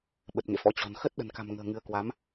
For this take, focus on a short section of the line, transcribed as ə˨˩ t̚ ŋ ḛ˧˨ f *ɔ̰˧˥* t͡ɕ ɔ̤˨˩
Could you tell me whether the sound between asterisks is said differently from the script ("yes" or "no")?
no